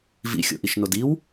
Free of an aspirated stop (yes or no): yes